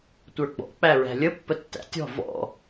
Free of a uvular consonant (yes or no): yes